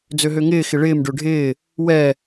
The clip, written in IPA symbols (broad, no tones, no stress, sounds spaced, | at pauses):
d͡z ø ɦ ø ŋ ɪː x ɪ ɭ ɪː m ɖ ø ɖʱ ɪː | w ɛ